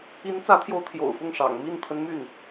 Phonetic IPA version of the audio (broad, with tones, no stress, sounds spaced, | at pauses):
i˧˥ n t͡s ä˧˥ t̪ʰ j o˧˥ ʊ̯ t̪ʰ j o̰˨˩ ʊ̯ f ʊ˥˩ ŋ ʂ ɑ̰˨˩ ŋ m i˥˩ n t̪ʰ ə˧˥ n m y˥˩ n